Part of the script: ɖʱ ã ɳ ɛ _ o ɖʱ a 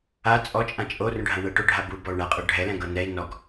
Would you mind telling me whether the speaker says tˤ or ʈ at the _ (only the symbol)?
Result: ʈ